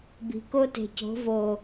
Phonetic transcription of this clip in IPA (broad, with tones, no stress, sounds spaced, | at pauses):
b i̤˨ k o˦ t e̤˨ c o̤˨˦ v o˨